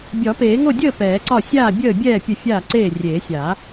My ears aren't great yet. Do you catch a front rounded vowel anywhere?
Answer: no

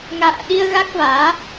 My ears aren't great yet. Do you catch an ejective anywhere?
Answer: no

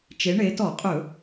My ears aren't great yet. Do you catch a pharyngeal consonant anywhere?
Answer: no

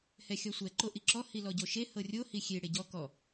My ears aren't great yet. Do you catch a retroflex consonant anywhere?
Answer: yes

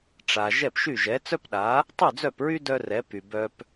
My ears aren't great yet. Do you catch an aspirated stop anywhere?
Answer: no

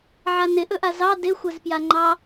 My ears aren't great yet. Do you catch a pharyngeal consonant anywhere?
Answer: yes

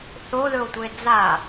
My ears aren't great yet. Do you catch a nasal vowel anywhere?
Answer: no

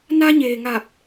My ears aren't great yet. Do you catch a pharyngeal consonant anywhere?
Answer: no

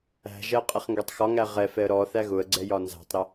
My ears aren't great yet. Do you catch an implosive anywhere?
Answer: no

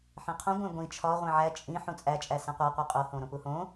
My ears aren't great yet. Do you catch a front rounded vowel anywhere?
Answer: no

